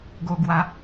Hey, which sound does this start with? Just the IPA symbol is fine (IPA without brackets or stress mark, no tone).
ɡ